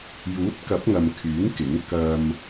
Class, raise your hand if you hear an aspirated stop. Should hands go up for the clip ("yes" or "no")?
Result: yes